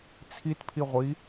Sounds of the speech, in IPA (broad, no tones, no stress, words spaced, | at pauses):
t͡sʰitpʰi ʁʷi